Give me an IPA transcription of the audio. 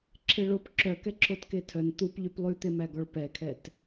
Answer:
ǁʰ e ɭ o p ǁʰ œ k ɛ ǁʰ o t k e tʰ œ n t̪ u p ʎ y p lˠ ʉ t̪ e m æ ɡ ɔ ɭ p ɛ kʰ ɛ t

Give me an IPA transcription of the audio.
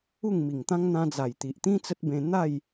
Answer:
u˥˧ ŋ m i˨˩ ŋ t̪ ã˦ ŋ n̪ ã˧ d͡z a˨˩ j t̪ i˨ ʔ t̪ ĩ˦ t͡s ə˦ t̚ b ẽ˧ n̪ a˥˧ j

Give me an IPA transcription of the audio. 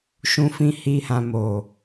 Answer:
ʃ ũ˨ f ĩ˨ h i˨ h ã˨ m o˨

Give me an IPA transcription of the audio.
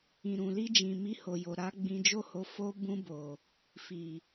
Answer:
ĩ˨ ɾ ũ˨ l i˧ d͡ʒ ĩ˨ m i˧ h o˨ j o˨ ɾ a˨˦ ɡ͡b ĩ˧ d͡ʒ o˦ h o˧ f o˧ b ũ˧ b o˨ | f i˨

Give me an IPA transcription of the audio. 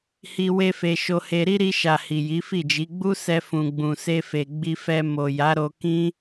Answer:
h i˧ w e˦ f e˧ ʃ o˧ h e˧ ɾ i˦ ɾ i˧ ʃ a˨ h i˨ j i˨˦ f i˦˨ d͡ʒ i˨˦ ɡ͡b u˦ s ɛ˧ f ũ˨ ɡ͡b ũ˨ s e˧ f e˨ ɡ͡b i˧ f ɛ˧ m o˨ j a˨˦ ɾ o˧ k ĩ˦

